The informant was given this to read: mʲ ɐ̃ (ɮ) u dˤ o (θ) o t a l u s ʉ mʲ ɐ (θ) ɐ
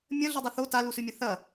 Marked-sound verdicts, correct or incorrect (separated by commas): correct, correct, correct